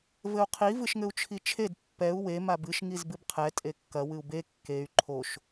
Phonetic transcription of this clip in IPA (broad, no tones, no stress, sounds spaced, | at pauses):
v ɘ u̯ qʰ i v ɨ ʃ ŋ ɘ u̯ t͡ʃʰ i t͡ʃʰ e d pː ɛ u̯ w e m a b ɨ ʃ ŋ i z b ɨ b qʰ ɛ tʼ e kː ɐ w ɨ u̯ b e kː e y̯ ǃʰ o ʃ